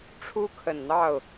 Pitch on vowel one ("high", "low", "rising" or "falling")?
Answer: high